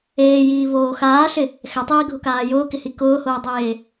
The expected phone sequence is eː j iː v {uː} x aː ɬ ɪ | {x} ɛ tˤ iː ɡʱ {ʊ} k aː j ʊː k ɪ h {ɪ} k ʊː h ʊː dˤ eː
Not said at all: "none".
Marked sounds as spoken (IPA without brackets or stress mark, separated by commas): oː, x, ʊ, i